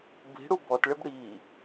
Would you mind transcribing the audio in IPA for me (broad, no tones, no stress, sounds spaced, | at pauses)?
b i̤ ɽ u b ɔ t ɭ ɪ b ɽ i